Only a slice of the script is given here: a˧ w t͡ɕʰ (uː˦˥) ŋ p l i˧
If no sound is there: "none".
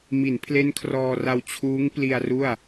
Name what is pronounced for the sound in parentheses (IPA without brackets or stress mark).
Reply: uː˦˥